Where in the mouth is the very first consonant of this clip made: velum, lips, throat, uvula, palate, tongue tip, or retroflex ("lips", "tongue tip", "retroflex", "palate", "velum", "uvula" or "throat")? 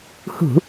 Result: throat